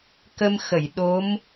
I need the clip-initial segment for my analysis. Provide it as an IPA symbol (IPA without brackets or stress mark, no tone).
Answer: k